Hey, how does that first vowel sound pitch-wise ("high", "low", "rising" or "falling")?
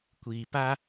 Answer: low